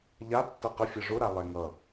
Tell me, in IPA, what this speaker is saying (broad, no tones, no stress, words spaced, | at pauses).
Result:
ʎa tːʌqə fʲʌʐʊ ɾalˠɛŋʌ